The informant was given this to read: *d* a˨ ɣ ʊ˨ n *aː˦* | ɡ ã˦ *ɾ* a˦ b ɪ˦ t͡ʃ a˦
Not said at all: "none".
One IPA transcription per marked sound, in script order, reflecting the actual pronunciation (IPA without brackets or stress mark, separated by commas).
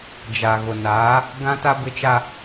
d͡ʒ, aː˨˦, t